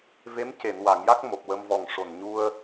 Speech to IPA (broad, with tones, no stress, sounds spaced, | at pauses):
v e˧˥ m c e˨˩˨ n w a˨˩˨ ŋ j a˦˥ k̚ m o˨˩ p̚ w ə˧ m v ɔ˨˩ ŋ ʂ o˨˩ n ɲ u˧ ə̯